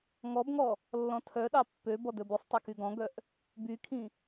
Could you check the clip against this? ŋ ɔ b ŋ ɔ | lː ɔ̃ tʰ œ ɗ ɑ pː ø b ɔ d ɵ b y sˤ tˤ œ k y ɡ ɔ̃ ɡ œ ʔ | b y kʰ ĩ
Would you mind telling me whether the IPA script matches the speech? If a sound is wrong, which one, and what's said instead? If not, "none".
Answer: none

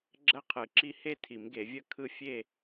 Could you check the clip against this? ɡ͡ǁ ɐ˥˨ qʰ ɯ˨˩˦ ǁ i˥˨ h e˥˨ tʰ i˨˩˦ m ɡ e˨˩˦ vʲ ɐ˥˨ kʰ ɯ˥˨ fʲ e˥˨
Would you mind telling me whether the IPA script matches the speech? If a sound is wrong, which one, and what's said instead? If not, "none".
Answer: none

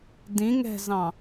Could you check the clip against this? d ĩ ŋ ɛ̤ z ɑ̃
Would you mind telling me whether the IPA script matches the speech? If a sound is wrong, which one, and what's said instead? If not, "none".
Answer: none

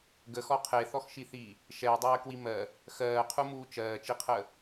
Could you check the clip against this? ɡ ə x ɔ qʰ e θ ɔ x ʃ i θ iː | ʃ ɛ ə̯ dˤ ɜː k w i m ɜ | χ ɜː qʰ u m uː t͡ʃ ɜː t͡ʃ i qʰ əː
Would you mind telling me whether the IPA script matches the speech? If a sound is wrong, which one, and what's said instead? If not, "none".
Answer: χ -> x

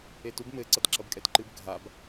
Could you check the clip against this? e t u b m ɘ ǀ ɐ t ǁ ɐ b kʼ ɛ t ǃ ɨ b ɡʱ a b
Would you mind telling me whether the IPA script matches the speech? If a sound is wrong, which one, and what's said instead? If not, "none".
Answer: none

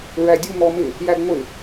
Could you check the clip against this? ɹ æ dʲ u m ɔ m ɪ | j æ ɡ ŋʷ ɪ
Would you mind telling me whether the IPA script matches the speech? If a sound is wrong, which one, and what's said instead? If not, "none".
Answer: none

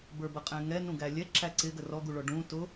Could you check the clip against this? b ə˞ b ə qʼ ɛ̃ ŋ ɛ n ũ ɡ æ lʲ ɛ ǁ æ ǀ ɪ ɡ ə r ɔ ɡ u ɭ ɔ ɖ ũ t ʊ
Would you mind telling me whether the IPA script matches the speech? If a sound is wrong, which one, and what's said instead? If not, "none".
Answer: none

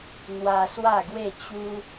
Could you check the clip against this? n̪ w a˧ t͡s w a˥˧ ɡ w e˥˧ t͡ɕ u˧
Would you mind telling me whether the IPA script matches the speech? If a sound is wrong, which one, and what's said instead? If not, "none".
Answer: t͡s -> s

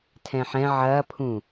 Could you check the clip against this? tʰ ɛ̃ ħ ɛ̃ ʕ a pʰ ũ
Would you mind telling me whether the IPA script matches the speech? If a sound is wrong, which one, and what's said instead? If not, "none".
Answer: a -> ɐ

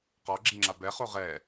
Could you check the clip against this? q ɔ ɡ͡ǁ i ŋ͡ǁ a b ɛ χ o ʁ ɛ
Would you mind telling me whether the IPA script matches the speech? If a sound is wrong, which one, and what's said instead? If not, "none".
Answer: none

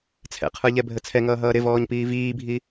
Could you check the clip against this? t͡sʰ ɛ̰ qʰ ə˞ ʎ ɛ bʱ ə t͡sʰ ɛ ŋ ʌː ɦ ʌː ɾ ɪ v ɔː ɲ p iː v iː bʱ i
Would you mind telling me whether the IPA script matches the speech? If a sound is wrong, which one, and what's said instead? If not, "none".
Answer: none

